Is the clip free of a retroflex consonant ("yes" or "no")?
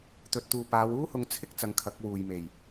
yes